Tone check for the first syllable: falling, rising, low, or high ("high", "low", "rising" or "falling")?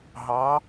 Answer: rising